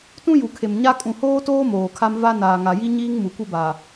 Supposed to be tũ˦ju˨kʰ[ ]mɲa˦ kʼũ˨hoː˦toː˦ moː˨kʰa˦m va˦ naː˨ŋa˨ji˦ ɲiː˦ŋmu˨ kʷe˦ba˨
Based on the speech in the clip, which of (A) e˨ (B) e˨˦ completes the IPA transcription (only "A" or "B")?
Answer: A